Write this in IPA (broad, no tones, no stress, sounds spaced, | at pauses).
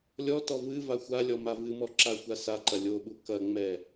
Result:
lʲ ɔ t ɔ v ɨ v a xʷ a lʲ ɔ m a v ɨ m ɔ ǁ a xʷ a s a ǃ ɐ lʲ o ɓ u k ɐ ŋ͡m ɛ